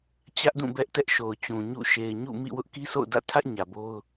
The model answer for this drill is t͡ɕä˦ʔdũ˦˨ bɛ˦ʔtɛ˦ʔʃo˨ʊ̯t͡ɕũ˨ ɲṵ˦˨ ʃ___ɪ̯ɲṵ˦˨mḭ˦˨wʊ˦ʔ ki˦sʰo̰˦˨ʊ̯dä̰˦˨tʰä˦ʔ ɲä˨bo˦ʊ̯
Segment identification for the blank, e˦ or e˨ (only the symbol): e˨